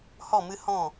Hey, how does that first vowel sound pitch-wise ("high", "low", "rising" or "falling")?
falling